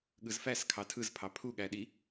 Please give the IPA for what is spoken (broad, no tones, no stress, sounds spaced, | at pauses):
ɠ ɯ z f æ s kʰ ɑ tʰ ɯ z pʰ ɑ pʰ u ɠ æ ɗ i